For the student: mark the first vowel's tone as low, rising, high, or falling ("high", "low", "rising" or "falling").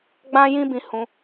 high